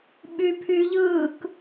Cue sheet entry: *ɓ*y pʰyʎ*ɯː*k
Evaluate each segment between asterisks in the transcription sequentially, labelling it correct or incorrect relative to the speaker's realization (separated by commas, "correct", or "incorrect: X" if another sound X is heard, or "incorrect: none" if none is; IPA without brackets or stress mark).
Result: correct, correct